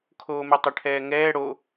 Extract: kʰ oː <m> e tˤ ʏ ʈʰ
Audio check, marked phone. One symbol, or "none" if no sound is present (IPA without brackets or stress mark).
m